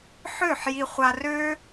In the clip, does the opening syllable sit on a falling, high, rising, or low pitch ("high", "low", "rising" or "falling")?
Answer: falling